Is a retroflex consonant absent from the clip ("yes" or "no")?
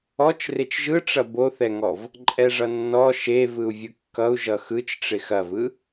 no